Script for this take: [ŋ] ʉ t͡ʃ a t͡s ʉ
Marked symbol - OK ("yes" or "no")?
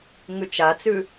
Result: yes